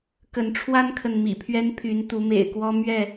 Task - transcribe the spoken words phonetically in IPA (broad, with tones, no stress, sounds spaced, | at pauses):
k ə˨˦ n ʈ͡ʂʰ w a˦ n kʰ ə˨ n m ḭ˨˩ pʰ ɥ ɛ˦ n pʰ y˨˦ n t̪ u˨˦ m ḛ˨˩ ɪ̯ k w ɔ˦ m ɥ ɛ˥˨